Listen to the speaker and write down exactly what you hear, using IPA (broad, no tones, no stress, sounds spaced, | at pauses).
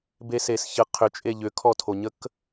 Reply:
b e s e s ç ə qʰ ʏ t͡ʃʼ e ʎ ʏ kʰ ɔ tʰ o ɲ ə k